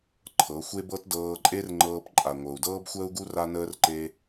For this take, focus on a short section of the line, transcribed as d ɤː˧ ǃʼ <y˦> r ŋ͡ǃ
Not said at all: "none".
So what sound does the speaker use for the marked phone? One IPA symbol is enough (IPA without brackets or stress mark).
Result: e˦